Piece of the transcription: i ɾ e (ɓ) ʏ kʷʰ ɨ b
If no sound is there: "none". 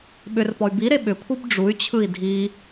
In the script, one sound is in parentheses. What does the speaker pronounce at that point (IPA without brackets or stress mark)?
ɓ